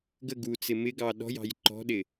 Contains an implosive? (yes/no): yes